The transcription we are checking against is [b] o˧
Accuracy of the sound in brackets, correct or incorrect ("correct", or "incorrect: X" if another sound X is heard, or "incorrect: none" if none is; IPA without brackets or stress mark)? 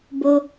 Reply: correct